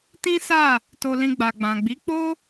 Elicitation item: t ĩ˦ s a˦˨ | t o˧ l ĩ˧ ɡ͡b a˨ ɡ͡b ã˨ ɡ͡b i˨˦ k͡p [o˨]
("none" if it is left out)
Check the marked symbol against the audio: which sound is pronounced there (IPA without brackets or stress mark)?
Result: o˦